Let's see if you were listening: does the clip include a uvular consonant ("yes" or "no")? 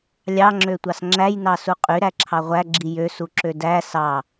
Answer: yes